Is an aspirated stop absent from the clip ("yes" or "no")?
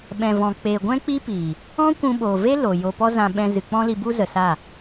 yes